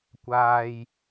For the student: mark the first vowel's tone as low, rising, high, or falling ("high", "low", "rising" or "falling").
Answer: low